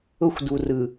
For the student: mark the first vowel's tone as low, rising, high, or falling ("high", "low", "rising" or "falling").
high